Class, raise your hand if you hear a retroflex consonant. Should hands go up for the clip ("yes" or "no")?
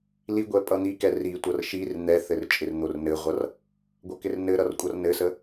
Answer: no